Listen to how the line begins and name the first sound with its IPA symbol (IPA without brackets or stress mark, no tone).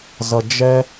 z